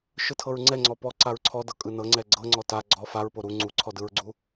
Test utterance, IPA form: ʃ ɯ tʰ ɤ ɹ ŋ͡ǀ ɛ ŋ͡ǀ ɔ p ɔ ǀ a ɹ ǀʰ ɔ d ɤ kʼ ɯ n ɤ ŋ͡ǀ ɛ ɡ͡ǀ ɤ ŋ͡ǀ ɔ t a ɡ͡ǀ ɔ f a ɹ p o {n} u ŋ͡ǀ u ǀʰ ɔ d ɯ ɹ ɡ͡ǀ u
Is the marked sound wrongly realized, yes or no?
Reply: yes